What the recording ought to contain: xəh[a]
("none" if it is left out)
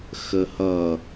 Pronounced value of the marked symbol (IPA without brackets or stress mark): ʌ